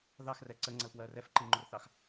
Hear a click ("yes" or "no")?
yes